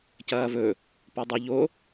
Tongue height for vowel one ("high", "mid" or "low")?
low